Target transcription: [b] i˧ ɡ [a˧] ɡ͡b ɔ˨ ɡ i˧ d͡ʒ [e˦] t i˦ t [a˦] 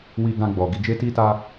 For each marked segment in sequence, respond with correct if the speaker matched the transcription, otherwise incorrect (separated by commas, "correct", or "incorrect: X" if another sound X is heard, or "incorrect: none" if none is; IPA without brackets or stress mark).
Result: incorrect: w, incorrect: ã˧, correct, correct